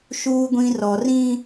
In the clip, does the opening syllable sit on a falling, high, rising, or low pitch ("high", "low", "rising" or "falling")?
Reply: low